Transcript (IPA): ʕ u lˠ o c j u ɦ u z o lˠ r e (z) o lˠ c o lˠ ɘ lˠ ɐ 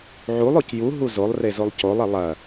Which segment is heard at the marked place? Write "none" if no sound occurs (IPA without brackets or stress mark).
z